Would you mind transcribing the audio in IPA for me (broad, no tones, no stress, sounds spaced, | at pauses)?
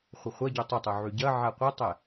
χʷ ə χʷ ɐ ɟ ø tˤ ʊ tˤ ø ʕ y ɟ ɐ ʕ a qʷ ə tˤ ɛ